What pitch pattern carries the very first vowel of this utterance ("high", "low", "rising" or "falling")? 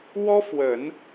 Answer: high